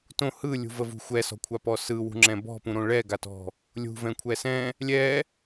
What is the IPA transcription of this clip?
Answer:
t õ h ɯ lʲ ṳ v ə v ṳ xʷ ɛ s ɔ̤ kʷʰ a p ɔ s ɯ w ṳ ŋ͡ǁ ɛ̃ b ɔ̤ p ũ ɾ õ ɭ ɛ ɡ a t ɔ̤ | lʲ ṳ v ɛ̃ kʷʰ ɛ s ɛ̃ | lʲ ɛ

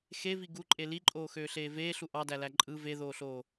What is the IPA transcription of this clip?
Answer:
x e v i ɡ u ǃʼ e l i ǃʼ oː x øː ɬ eː v eː ɬ u ʔ ɑ d æ l æ ǃʼ ɯ v e ð oː ɬ oː

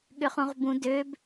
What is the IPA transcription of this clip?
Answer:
ɠ ʏ χ ũ ʁ b ũ d ø b

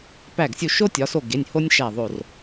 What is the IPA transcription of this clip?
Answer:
p æ˧˩ ɡ sʲ u˧˩ ʃ o˥ tʲ ɒ˩˧ s o˧˩ ɡ e˩˧˩ nʲ h o˥ nʲ ʃ æ˧˩ ðˤ o˧˩ r

